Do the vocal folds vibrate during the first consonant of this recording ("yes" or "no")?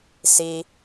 no